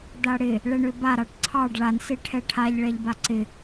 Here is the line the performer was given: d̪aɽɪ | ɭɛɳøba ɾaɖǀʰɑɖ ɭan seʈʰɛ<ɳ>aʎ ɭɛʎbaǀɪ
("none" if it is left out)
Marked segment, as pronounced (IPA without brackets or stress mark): ʈʰ